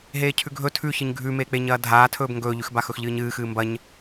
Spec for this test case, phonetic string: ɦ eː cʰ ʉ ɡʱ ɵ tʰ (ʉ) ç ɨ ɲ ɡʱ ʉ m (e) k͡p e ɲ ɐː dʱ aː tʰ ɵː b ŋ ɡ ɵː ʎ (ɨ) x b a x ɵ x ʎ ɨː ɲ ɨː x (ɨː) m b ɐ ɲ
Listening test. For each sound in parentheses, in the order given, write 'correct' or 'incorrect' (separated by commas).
correct, incorrect, incorrect, correct